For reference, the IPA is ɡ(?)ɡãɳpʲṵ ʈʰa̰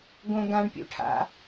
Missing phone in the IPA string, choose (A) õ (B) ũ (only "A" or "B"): A